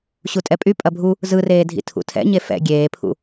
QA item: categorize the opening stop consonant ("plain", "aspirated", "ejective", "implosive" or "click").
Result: ejective